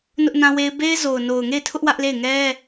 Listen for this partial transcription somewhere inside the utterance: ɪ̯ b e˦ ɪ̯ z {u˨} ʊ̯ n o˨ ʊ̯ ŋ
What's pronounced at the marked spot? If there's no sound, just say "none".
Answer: o˨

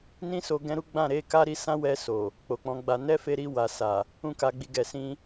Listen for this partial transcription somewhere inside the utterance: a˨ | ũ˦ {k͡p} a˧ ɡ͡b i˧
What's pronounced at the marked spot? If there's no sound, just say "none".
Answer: k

